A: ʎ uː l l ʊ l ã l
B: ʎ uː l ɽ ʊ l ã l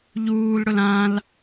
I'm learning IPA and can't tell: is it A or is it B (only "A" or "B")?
B